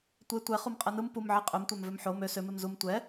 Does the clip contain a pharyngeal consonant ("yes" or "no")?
yes